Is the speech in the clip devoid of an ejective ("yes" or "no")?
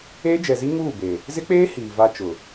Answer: yes